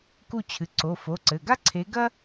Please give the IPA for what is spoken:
k u˦˨ t͡ɕʰ ɨ˩˧˩ ǀ o˩˧˩ f o˩˧˩ ǀ ɘ˩˧˩ ɡ a˥ ǀʰ e˨˦ ɡ ɐ˥

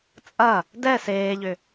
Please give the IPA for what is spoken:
t͡sʼ ɐ | d ɛ s eː ʎ ʏ

